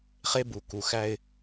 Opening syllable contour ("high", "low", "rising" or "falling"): high